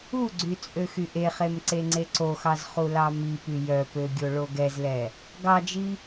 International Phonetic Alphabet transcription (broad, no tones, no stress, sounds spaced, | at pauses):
u ɡ͡ǀ y t͡sʼ ø x y ʔ e χ e m ǀ e ŋ͡ǀ e ǀ o x ɑ z χ u l ɑ m i p y j œ p ø ɡʲ o ɭ o ɡ ɛ z l ɛ | ɡ ɑ d͡ʒ i